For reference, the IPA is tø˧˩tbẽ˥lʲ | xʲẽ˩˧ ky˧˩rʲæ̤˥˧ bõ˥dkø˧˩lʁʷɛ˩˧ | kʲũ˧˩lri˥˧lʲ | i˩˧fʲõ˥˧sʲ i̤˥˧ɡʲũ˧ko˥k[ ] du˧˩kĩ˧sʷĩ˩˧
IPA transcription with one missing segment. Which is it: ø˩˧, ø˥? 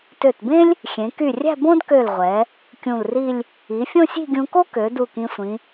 ø˩˧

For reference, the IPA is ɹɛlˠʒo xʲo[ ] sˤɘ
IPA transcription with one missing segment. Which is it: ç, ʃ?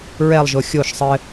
ʃ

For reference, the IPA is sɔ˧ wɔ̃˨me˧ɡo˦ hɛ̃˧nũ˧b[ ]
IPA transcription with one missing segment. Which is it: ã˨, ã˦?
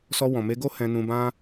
ã˦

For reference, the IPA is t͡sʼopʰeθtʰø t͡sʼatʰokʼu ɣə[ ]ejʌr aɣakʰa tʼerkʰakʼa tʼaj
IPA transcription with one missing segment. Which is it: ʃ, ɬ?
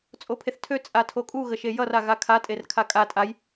ʃ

